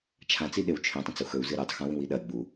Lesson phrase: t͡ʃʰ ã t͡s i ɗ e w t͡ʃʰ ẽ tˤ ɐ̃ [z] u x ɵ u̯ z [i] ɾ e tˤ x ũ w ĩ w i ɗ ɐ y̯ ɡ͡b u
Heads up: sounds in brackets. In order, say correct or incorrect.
incorrect: t͡s, incorrect: ɨ

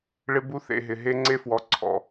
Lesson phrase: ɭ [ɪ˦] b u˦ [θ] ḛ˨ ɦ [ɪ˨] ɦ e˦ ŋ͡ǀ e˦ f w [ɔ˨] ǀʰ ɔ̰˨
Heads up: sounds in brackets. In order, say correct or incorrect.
correct, correct, correct, correct

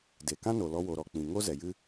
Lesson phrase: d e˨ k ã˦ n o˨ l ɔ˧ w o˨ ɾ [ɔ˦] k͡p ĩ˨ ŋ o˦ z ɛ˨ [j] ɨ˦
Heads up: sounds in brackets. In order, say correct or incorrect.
incorrect: ɔ˨, correct

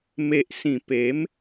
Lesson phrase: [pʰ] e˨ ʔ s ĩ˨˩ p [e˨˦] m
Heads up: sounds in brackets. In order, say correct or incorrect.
incorrect: m, correct

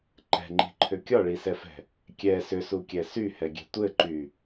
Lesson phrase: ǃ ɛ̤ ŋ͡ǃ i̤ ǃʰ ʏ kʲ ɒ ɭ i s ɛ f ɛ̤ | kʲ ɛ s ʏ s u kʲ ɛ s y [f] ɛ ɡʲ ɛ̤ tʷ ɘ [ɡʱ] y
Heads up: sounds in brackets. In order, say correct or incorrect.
incorrect: h, incorrect: ǃ

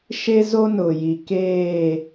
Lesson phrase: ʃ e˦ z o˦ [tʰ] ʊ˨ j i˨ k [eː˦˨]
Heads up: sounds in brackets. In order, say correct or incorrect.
incorrect: n, correct

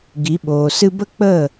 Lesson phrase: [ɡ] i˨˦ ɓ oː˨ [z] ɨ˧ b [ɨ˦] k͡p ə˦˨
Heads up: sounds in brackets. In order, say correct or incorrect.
correct, incorrect: s, incorrect: ə˦

